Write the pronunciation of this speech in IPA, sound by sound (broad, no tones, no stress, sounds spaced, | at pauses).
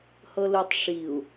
h ɤ l u tˤ ʂ i u̯